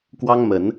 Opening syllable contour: high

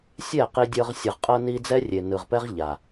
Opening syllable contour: falling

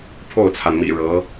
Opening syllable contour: falling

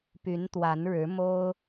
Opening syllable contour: rising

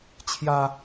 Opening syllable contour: high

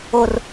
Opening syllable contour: low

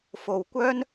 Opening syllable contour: low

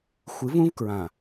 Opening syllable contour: rising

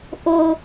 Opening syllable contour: low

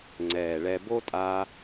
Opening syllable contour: low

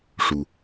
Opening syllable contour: low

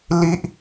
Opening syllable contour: high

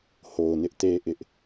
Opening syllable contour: low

